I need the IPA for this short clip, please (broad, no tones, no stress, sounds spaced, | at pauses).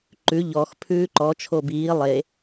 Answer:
ǃ ʉ ʎ ɔ x pʰ ʉː ǃ ɔ t͡ʃʰ o b iː lˠ e